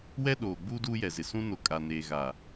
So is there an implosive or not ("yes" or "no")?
yes